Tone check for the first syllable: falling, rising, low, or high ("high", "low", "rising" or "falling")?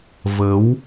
rising